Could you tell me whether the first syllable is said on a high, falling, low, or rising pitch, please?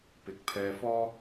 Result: rising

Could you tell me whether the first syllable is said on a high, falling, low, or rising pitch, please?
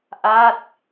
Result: falling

